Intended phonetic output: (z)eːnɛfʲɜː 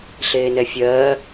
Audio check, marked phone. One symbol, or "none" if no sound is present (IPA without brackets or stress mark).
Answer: ɬ